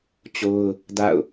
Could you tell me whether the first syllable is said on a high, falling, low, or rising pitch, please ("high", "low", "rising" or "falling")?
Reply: high